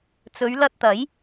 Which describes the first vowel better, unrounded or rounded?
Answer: rounded